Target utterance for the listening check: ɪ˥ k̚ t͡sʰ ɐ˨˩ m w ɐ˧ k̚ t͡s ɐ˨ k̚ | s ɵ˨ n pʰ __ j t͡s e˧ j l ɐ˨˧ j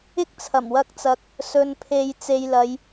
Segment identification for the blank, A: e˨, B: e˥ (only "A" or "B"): A